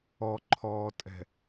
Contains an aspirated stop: yes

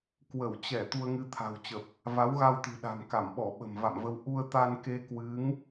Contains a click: no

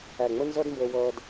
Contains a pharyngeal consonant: no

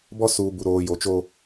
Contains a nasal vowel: no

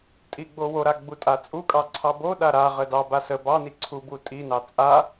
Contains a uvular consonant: yes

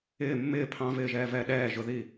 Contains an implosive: yes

